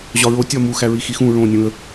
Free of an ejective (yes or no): yes